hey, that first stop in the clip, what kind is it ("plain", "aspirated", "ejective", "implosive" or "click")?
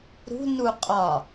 ejective